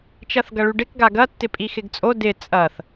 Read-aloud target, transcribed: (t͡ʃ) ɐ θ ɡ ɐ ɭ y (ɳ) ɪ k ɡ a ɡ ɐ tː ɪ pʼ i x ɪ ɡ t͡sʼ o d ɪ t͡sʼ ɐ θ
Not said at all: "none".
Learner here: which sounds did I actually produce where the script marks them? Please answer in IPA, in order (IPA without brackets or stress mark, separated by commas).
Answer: t͡ʃ, ɖ